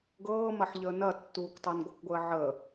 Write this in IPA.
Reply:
ɡ ɤː m ɐ ħ ʎ əː n ɐ tː uː k tˤ ɤ n ɡʷ ɤ k ɡʷ əː ʕ əː

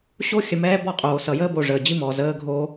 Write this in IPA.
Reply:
ɕ o˦ xʲ ə˨ m ɛː˦ b ɔ˦˨ qʼ oː˨ s ʌ˨ j əː˦ b o˨ ʐ əː˨ d͡ʑ i˦ m ɔː˨ z əː˦ ɡʱ oː˦

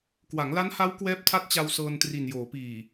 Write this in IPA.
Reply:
k w a˩˦ ŋ l a˦˥ n h a˦˥ w k w ɛː˦˥ p̚ tʰ a˦˥ t̚ t͡ɕ a˧ w s ɤː˧ n t r i˨˩ n j oː˩˦ p iː˨˩

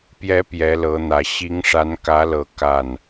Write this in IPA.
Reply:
p j ɛ˧˥ p j ɛ˧˥ l ɤ˧˥ n̪ ä˨˩ ɕ i˧˥ ŋ ʂ a˧˥ n k ä˧˥ l ɤ˨˩ k a˥˩ n

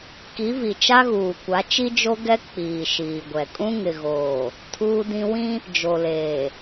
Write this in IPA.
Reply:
k i˨˦ v i˨ t͡ʃ a˦ ɣ uː˨ kʷ a˨˦ t͡ʃ i˦ d͡ʒ o˦ ɡ ɛ˦ k͡p iː˨ ʃ iː˨ ɡʷ ɛ˨ kʼ ũ˦ ŋ ɪ˨ ɣ oː˨ | tʰ uː˦ d ĩ˦ w ĩ˦ | d͡ʒ o˨ l eː˨

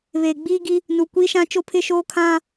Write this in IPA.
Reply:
β eː˨ ɡ͡b iː˦ ɡ i˦ | n u˨ kʷ i˦ ʃ ã˦ t͡ʃ o˦ pʰ ɪ˦ ʃ oː˦ kʰ ã˦

